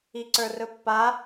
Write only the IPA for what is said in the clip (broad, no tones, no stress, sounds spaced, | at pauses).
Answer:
i ǀ ə˞ r ɵ pː a